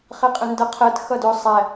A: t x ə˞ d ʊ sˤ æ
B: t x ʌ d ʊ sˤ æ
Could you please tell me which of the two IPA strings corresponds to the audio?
B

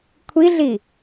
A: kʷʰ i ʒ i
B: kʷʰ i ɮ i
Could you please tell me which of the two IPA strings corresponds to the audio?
B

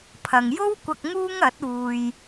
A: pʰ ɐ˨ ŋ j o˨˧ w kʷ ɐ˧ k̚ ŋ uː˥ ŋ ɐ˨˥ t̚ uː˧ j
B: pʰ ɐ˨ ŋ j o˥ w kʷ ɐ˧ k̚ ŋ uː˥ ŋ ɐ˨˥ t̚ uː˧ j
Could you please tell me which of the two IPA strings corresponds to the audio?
B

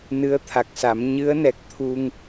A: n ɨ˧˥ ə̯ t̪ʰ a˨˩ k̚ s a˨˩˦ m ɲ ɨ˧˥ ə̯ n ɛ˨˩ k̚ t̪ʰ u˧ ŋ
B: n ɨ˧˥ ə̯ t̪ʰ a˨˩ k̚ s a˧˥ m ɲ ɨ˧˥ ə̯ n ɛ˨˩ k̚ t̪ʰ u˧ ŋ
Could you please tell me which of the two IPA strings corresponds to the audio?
A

